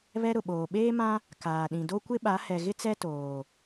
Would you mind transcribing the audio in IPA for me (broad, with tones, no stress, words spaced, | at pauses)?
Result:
βɛ˦ ɾʊ˨ɓoː˨ ɓeː˦mã˦ | kaː˨ɗĩ˨ do˦kʷɪ˦ɓa˨˦ hɛ˨ɣɪ˦t͡sɛ˦ toː˨